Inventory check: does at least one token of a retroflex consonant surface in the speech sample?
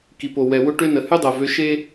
yes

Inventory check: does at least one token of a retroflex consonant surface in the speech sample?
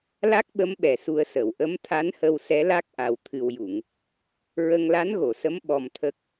no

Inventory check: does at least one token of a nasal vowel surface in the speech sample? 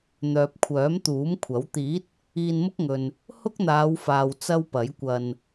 no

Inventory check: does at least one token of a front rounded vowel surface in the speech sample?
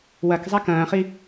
no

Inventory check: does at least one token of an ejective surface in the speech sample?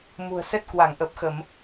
no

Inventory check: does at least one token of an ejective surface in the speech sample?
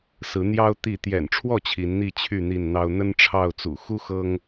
no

